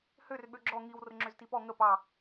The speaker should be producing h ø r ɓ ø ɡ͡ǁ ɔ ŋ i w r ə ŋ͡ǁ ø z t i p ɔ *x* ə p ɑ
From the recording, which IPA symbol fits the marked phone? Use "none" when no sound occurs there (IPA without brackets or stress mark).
ŋ